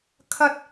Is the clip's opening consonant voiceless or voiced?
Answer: voiceless